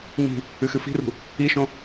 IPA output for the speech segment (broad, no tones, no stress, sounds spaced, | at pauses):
ɲ i̤ | ɨ x ɨ f i̤ r ṳ | i ʃ õ